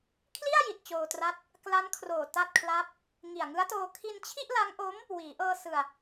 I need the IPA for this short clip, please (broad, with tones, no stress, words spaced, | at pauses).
kʰli˥˩a̯ji˨˩t̚ t͡ɕoː˧tra˥˩t̚ | kla˦˥nkʰroː˨˩ ta˥˩t̚kʰla˥˩p̚ | ŋi˨˩a̯ŋɯ˦˥a̯toː˧ kʰi˧nt͡ɕʰi˥˩ʔla˦˥ŋʔo˦˥m | wiː˩˦ʔɤː˧ sɯ˧a̯